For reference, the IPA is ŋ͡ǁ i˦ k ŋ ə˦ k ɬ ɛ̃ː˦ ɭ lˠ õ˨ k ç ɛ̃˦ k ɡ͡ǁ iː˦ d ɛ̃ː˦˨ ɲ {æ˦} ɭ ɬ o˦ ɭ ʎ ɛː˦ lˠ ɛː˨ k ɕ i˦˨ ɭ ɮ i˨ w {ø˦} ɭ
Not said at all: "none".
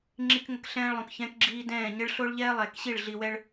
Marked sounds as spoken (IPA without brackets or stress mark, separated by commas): ə˦, ɛ˦